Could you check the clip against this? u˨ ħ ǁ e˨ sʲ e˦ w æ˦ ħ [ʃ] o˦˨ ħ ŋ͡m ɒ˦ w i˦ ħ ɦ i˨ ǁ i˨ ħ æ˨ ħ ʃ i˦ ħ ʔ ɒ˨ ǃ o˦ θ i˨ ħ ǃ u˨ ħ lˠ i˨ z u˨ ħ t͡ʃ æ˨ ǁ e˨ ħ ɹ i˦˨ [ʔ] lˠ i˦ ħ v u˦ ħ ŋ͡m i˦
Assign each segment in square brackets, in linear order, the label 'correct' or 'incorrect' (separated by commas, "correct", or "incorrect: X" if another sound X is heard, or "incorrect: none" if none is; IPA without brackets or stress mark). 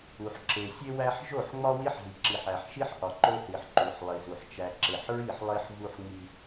incorrect: ʒ, incorrect: ħ